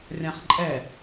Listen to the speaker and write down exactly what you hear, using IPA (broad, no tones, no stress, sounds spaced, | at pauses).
rʲ ã χ ǃʼ ɛ